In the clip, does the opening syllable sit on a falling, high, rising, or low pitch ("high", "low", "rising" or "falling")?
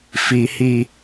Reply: high